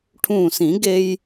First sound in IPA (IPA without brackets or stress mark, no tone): ʈʰ